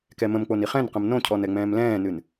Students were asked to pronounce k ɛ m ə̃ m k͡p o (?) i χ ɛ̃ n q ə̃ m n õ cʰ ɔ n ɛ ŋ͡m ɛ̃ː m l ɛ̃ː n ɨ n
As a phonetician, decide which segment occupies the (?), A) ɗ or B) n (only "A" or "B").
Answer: B